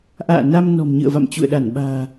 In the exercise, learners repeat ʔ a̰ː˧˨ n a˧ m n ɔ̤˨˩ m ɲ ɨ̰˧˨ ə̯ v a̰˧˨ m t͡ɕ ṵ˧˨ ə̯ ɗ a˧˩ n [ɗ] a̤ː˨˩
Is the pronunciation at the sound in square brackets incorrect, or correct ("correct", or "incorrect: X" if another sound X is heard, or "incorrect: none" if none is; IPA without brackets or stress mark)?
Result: incorrect: ɓ